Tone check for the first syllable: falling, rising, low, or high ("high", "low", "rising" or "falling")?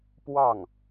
falling